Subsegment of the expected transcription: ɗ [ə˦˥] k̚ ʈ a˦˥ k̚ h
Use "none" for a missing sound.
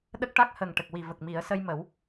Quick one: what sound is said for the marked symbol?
ə˦˥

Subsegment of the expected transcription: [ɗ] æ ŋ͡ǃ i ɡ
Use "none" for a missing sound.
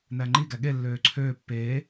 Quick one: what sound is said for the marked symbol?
n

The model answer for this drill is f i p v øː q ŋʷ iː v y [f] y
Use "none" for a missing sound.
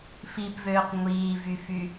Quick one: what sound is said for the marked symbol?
f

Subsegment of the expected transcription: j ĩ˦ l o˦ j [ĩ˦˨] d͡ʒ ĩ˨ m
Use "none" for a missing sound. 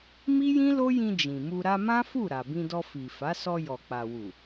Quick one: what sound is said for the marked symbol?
ĩ˧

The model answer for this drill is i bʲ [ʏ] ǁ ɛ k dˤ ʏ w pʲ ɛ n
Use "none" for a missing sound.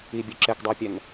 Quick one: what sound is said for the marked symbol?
u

